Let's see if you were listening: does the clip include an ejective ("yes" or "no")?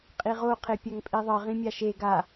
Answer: yes